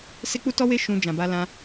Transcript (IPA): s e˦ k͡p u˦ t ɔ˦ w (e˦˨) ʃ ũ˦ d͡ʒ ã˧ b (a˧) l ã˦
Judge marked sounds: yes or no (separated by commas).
no, no